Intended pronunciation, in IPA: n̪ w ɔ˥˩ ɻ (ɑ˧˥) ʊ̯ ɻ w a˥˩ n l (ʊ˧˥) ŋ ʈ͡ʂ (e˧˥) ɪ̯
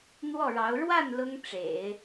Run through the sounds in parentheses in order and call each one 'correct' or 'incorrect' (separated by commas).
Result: correct, incorrect, incorrect